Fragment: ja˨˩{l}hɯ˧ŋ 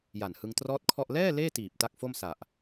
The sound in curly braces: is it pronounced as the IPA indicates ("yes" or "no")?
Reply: no